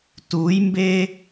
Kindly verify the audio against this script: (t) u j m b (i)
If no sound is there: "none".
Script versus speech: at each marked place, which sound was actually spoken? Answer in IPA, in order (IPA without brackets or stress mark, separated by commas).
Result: t, e